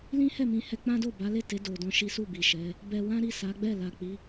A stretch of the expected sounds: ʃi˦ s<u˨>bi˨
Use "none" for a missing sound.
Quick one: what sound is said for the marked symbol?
u˦˨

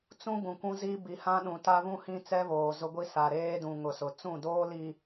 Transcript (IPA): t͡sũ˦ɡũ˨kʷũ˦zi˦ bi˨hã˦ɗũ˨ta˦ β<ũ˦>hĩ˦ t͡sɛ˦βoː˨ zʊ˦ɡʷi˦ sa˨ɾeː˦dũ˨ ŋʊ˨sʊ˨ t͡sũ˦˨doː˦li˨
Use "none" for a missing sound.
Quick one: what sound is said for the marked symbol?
ũ˦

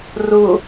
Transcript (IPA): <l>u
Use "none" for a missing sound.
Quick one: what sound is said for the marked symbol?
r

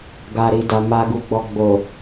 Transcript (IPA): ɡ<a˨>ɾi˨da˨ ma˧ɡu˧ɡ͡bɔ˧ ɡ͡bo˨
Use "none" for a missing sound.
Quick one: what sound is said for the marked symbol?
a˨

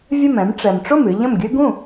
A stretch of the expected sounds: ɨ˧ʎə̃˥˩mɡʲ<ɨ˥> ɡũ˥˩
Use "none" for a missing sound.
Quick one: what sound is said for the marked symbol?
ɨ˥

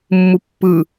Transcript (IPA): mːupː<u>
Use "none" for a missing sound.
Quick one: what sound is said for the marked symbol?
ɯ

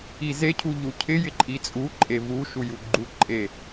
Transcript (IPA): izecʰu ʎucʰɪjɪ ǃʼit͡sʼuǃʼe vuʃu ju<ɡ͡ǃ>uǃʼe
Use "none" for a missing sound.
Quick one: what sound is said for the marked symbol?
ɡ͡ǃ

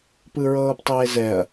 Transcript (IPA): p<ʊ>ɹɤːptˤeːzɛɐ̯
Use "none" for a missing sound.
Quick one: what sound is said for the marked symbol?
ɯ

